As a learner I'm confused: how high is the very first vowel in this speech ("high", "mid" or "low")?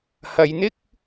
low